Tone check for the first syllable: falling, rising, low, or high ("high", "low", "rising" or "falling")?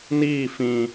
falling